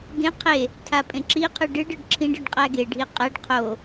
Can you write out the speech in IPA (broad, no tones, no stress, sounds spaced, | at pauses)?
ɡ ẽ qʰ e | tʰ a pʼ ẽ ǁ i qʰ ɨ ɖ ɨ ɖ ɯ ɖ ǁʰ ĩ ɖ ɯ ɖ qʼ æ ɡ e ɖʱ i qʼ æ ɖ qʰ o